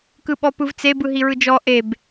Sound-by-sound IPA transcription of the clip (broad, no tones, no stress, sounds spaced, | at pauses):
k ɯ ɓ ɔ p ɯ v t͡s e b ɯ ɦ i ɹ ɯ d͡ʒ ɔ ʔ e b